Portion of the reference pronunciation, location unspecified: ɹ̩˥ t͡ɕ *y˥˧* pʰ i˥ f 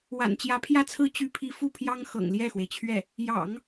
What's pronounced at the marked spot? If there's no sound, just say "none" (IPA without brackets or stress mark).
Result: y˥